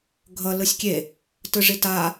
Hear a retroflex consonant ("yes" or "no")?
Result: yes